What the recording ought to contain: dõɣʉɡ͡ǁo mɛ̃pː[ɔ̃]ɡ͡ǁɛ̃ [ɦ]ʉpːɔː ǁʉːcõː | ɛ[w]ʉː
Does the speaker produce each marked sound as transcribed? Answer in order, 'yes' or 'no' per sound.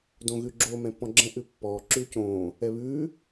yes, no, no

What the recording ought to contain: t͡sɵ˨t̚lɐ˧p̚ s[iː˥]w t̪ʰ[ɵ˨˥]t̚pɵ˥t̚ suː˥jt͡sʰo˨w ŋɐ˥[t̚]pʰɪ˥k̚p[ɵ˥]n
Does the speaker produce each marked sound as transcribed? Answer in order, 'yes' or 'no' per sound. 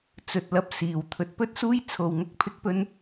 no, no, no, yes

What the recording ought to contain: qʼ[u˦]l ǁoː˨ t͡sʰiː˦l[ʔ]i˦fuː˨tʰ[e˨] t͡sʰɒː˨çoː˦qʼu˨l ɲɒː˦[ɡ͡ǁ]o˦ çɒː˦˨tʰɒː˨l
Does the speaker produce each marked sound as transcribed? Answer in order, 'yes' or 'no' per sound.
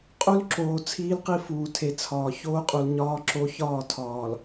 yes, no, yes, no

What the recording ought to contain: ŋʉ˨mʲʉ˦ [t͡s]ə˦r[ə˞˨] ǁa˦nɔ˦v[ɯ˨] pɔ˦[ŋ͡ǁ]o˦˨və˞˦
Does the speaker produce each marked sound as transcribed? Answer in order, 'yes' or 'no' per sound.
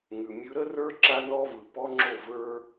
no, no, yes, yes

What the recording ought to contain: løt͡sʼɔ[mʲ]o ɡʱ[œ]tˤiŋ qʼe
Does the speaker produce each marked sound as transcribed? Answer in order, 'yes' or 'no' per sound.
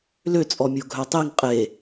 yes, yes

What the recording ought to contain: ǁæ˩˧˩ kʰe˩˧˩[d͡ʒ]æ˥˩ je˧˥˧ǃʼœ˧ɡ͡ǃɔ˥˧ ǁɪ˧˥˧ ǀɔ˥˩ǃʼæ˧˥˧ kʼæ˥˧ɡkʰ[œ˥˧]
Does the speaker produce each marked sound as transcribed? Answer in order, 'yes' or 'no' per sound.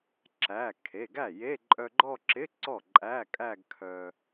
no, no

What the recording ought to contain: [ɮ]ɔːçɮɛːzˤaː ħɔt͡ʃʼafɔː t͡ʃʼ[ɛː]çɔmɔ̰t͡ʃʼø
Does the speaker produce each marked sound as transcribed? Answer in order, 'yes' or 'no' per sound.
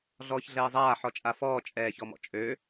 yes, yes

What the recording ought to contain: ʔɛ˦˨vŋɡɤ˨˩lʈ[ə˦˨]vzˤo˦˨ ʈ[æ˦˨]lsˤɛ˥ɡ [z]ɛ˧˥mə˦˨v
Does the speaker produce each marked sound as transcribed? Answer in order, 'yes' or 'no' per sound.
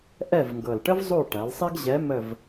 no, no, no

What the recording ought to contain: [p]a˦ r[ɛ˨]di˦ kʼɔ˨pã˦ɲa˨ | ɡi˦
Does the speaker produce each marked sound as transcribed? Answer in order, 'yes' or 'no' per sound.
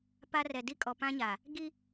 yes, yes

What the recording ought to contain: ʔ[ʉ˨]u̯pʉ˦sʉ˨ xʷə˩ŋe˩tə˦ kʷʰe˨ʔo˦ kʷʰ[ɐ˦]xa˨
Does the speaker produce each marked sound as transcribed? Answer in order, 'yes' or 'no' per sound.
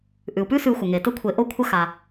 no, yes

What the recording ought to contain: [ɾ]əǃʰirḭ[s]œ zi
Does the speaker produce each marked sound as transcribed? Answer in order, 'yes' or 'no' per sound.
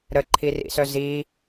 yes, yes

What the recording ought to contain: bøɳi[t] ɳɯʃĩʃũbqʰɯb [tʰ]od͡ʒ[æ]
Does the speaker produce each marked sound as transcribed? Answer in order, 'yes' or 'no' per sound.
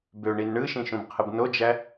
no, no, yes

